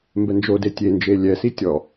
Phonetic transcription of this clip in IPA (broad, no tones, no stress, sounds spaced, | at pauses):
m b ɛ n d͡ʒ o d e tʲ e n d͡ʒ e lʲ ɛ s i tʲ ɔ